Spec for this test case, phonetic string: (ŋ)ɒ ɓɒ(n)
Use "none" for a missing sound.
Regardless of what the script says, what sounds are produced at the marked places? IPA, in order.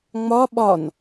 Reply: ŋ͡m, n

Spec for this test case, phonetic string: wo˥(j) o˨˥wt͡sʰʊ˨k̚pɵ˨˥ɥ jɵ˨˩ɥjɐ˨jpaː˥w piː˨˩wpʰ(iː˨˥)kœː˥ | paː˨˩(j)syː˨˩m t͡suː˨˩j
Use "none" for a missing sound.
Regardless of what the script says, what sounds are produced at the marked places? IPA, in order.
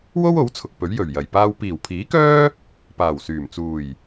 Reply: w, iː˨˥, w

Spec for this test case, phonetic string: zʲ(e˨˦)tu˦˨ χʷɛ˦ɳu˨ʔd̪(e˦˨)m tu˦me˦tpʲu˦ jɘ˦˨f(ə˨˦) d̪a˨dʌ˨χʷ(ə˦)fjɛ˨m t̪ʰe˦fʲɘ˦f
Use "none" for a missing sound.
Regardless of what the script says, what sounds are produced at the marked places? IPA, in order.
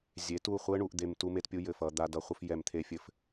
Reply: e˨˦, e˨, ʌ˨˦, ə˦

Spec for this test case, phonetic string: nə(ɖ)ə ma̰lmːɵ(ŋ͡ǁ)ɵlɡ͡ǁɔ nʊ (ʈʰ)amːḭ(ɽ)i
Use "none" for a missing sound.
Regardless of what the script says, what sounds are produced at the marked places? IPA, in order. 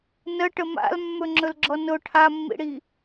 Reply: ʈ, ŋ͡ǁ, ʈʰ, ɽ

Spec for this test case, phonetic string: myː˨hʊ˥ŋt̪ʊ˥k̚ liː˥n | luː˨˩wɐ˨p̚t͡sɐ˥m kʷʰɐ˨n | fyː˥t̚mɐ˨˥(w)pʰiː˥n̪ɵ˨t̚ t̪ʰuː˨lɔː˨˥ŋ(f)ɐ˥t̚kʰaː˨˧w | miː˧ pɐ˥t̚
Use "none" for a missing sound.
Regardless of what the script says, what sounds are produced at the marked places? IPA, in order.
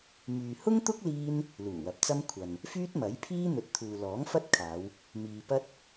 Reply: j, f

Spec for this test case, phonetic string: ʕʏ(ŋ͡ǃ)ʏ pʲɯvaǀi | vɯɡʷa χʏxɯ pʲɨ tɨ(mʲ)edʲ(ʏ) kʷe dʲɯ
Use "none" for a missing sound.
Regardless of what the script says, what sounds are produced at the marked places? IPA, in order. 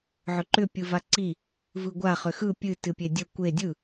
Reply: ǃ, pʲ, ə

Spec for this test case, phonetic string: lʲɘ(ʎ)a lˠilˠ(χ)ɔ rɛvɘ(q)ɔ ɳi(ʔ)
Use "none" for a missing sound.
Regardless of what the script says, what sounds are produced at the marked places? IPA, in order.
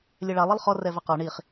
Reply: ɭ, χ, q, χ

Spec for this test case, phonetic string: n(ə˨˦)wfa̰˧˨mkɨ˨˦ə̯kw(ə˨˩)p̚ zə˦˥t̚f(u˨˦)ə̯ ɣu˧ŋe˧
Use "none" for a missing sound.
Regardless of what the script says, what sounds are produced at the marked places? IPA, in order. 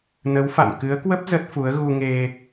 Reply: ə˨˦, ə˦˥, u˨˦

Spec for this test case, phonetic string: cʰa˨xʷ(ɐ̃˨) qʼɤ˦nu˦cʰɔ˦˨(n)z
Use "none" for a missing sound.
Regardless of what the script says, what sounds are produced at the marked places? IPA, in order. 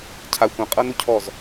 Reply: ã˨, none

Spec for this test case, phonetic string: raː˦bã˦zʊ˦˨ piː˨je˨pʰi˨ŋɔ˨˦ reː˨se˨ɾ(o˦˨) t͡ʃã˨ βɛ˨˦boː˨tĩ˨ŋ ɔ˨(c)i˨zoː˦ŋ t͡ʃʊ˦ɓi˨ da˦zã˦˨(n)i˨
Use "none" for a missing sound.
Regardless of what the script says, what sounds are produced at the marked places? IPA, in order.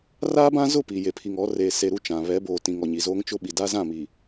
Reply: u˦˨, ɲ, m

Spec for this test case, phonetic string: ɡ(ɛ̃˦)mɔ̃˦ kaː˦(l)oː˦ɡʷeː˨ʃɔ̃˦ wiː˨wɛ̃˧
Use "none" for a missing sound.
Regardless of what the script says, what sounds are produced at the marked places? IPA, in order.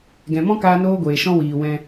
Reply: ɛ̃˨, n

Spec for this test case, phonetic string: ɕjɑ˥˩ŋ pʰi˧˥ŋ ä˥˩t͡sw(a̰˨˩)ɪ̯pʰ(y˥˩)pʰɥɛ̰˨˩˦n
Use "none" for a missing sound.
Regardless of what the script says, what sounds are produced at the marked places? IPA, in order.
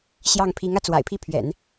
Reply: a̰˨˩, i˥˩

